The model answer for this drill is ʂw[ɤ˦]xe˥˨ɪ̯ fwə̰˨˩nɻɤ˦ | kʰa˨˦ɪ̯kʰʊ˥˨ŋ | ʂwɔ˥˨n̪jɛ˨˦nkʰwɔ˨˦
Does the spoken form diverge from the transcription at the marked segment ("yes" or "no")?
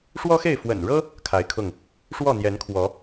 yes